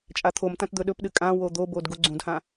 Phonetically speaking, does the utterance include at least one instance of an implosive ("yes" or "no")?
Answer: yes